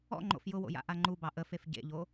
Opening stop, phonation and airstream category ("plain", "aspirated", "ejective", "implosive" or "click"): click